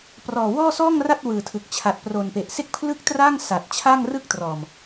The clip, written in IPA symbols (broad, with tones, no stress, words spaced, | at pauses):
prɔː˨˩wɔː˥˩ sɔː˥˩ŋra˥˩t̚ wɯː˨˩tʰɯ˨˩k̚ t͡ɕʰa˨˩t̚pro˨˩npe˨˩ʔ se˥˩k̚pʰlɯ˥˩k̚traː˥˩ŋ sa˨˩t̚ t͡ɕʰa˥˩ŋrɯ˥˩k̚trɔː˨˩m